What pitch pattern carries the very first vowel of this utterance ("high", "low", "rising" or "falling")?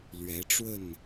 rising